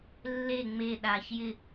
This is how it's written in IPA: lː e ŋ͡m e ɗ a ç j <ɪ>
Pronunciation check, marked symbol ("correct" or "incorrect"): correct